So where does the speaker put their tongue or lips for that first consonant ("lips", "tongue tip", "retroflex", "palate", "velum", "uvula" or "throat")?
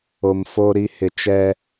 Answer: lips